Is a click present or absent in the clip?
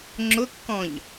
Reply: present